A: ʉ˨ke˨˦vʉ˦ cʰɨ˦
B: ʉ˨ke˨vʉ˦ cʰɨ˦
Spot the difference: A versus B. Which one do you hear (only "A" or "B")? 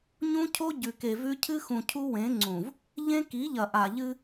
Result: B